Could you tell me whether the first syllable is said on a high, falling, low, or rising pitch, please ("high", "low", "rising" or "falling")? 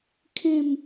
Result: falling